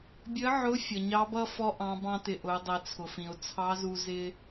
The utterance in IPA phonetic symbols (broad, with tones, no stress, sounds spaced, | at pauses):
bʲ ə˧˥ ʕ ʊ˧˥ fʲ ʌ˩ ɲ ɑ˧˥ b ʌ˥ f ɔ˧˥ ʔ ɑ̃˩˧ b ɑ̃˧ t ɪ˩ ʔ ʊ˩˧ ɪ̯ dˤ i˩ t͡sʰ ʊ˩ f ĩ˩ ʊ̯ t͡sʰ ɑ˧˥ z u˧ z ɪ˥